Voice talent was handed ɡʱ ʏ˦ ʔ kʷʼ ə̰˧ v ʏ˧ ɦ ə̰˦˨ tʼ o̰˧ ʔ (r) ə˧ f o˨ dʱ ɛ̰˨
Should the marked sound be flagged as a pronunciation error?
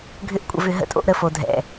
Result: yes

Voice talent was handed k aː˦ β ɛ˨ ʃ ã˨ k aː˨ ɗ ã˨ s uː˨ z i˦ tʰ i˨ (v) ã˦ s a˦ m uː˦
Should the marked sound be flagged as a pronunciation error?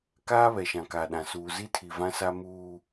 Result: no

